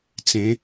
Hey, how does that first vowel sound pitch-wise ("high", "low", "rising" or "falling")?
rising